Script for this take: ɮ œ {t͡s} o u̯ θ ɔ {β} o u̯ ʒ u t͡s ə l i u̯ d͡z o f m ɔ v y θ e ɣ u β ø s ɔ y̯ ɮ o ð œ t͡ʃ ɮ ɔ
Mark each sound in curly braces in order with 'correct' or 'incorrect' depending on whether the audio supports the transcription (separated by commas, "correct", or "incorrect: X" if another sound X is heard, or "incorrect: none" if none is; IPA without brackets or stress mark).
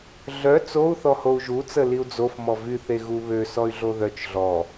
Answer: correct, incorrect: h